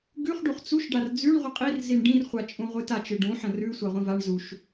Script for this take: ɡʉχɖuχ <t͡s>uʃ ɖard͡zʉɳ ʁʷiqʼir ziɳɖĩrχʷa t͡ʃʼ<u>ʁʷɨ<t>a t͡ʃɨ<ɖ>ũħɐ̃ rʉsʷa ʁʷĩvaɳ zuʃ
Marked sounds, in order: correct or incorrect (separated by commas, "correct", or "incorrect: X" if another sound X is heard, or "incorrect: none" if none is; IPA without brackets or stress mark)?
correct, incorrect: ũ, correct, correct